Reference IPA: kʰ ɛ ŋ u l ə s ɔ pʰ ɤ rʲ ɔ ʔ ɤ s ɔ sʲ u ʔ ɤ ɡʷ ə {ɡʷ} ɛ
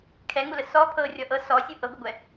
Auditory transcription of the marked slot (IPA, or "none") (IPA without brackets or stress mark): ɡʷ